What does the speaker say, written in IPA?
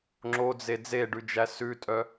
ŋ͡ǁ o d͡z e d͡z e ɖ ʉ d͡ʒ æ s ʉ tʼ œ

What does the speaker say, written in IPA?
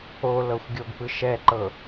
o l ɤ xʷ ɡʲ o ɡ p ɯ ʃ ɛ ǃ ɤ

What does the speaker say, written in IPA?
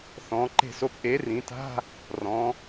θ ɔ̃˩˧ ǃ e̤˦˨ s o˥ p ʔ e˨˥ r ĩ˩˧ t a̤˧˥˧ | r ɔ̃˩˧

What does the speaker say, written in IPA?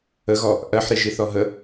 ə ɣ ɔ | ʔ ɜ ħ ɾ i ʒ i θ ɔ ɦ ə

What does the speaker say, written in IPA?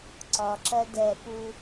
ǀ ɒ ǁ ɜ d ɛ p u

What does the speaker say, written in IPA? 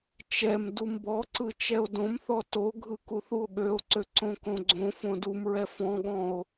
t͡ʃ ɛ m d u m b ɔ ǀ ɯ t͡ʃ ɛ o̯ d õ m θ ɔ t o ɡʱ ɯ k u θ u o̯ ɠ ø o̯ ǀ ø ǀ õ k õ ɡ͡ǀ õ f õ d u m ɹ ɛ f ɔ̃ ɠ ɔ̃ o̯

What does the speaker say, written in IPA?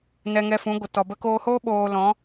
n ɛ˧ ŋ ɛ˧ f ũ˨˦ ɡʷ ə˨ t ɔ˨ b ə˧ k oː˧ h oː˦ ɓ oː˧ l ɔ̃˨˦

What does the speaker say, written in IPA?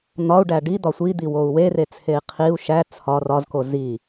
n̪ ɒ u̯ ɖ æ ɖ i d̪ ɒ sʷ i d̪ i w o u̯ w e r e t͡sʰ e i̯ qʰ i u̯ ʃ æ t͡sʰ ɒ r ɒ z k o z i

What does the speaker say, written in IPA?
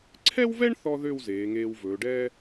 ǀʰ ɛ˥ w v ɛ˥ ɳ θ ɔ˥ ð ø˥˧ w z eː˩˧ ŋ eː˧ w v ɵː˩˧ ɖ ɛː˥

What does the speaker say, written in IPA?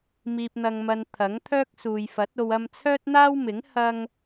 m iː˨ p̚ n̪ ɐ˨ ŋ m ɐ˨ n t̪ʰ ɐ˨˥ ŋ t̪ʰ œː˥ k̚ s uː˨ j f ɐ˨˥ t̚ o˧ w ɐ˧ m t͡sʰ œː˥ t̚ n̪ aː˥ w m ɪ˨˥ ŋ h ɐ˥ ŋ

